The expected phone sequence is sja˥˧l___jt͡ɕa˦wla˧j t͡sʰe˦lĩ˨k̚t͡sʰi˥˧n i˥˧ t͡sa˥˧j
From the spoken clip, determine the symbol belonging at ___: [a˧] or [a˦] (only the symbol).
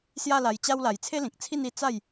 a˧